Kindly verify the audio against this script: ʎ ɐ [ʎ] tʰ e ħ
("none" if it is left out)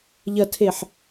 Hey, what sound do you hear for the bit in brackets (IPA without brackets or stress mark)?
none